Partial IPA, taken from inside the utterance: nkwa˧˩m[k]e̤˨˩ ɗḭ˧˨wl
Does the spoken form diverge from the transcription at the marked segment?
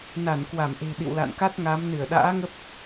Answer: yes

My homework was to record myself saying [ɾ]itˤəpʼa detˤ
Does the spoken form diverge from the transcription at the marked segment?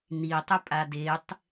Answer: yes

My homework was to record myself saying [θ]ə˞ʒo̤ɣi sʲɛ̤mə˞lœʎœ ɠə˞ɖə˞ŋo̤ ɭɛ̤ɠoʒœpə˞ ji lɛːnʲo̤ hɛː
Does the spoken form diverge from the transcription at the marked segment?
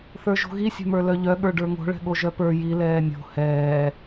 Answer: no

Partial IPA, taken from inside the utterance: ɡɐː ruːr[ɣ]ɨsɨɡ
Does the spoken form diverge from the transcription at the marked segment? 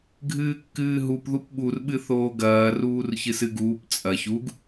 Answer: yes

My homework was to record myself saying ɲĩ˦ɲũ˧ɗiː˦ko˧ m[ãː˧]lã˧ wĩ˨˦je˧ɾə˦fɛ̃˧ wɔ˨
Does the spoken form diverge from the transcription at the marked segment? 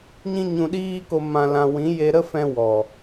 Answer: yes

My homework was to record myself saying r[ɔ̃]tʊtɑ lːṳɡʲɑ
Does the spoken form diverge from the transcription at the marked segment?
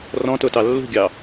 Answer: no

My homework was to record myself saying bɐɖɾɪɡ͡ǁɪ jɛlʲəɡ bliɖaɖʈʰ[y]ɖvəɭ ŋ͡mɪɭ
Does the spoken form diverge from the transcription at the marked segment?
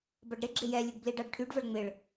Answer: no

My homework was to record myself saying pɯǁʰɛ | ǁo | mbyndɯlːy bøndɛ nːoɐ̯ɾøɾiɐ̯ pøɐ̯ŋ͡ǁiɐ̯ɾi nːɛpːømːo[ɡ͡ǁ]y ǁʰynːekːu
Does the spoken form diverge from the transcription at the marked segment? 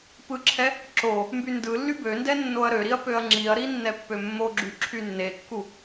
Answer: no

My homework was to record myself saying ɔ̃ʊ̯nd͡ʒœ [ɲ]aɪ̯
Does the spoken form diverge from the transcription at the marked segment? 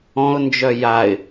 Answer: yes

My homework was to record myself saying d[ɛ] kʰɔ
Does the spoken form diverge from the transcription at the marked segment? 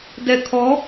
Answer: no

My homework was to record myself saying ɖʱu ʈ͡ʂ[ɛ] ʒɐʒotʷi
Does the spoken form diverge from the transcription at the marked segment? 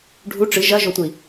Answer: yes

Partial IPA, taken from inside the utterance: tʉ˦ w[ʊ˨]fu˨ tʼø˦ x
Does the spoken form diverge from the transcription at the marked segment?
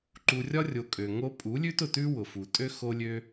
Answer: no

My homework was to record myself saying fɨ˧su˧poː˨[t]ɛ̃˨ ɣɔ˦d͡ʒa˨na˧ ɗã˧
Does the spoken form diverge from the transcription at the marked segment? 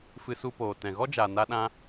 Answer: no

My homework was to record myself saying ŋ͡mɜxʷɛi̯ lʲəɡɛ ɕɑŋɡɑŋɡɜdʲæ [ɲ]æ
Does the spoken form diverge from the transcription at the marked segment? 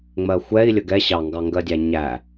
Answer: no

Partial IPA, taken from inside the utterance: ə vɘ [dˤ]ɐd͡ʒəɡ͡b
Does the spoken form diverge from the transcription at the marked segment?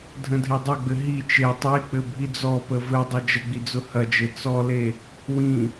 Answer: no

